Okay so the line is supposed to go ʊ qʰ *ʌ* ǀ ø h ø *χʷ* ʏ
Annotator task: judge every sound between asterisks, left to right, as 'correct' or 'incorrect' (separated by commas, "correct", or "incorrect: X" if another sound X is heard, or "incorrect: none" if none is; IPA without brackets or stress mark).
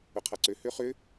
incorrect: a, incorrect: χ